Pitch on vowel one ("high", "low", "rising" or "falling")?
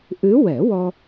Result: rising